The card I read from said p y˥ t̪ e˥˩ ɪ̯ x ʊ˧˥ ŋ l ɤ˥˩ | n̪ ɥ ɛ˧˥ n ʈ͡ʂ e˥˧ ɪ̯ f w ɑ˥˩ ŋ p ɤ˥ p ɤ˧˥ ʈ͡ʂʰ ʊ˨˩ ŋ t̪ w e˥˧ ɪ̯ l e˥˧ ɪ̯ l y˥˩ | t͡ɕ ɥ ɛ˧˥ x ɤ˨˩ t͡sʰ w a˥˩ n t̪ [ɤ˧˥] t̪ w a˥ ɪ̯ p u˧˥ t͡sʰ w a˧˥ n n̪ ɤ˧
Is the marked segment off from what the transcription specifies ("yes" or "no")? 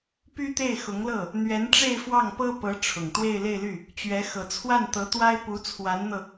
no